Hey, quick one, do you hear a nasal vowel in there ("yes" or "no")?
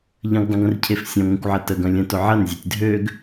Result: yes